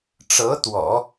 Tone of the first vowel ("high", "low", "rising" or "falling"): rising